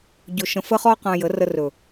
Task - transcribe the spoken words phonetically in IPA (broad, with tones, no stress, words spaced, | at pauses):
ɟɵ˨ʃə̃˨fə˧χɔ˧ qã˧jə˨˦rə˧rɵ˨